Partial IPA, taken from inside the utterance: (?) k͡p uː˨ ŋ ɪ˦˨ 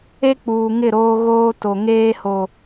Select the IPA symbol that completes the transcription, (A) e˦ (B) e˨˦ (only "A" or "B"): A